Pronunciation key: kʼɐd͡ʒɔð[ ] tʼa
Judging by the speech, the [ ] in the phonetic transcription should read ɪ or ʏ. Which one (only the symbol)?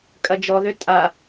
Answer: ʏ